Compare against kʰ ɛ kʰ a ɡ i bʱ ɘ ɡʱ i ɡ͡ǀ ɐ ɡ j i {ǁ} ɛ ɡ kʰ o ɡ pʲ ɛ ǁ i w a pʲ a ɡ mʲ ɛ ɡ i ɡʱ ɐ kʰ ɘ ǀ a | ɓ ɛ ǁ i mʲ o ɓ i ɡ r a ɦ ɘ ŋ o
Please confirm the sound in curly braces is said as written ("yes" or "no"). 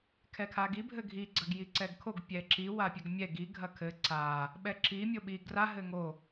no